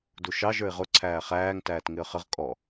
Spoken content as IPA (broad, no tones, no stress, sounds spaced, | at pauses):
d u ʃ ɑ ʒ ə˞ ɪ̯ ʁ ʊ ǀʰ æː χ æː ŋ t æː t ŋ ɪ ə̯ χ ə ʁ kʼ ɔ